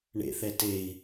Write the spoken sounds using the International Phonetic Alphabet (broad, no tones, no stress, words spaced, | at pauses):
ɳḛθɛ tei̯